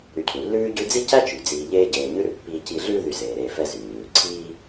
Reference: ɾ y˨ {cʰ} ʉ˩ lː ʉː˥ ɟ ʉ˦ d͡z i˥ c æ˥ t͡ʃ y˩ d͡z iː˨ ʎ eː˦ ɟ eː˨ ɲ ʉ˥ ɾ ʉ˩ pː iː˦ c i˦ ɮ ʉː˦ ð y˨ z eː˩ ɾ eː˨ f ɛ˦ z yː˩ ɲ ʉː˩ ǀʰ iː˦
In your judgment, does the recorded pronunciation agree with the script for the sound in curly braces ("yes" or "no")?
yes